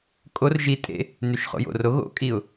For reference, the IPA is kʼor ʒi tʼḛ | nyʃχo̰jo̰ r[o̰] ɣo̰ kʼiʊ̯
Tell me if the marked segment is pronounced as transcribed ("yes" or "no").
no